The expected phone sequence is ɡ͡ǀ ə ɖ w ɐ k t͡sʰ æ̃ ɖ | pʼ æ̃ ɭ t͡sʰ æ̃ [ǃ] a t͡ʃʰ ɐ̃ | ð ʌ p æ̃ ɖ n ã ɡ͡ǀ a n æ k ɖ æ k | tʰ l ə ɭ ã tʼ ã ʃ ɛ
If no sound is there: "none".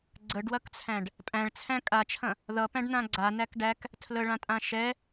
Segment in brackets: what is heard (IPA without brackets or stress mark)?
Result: kʼ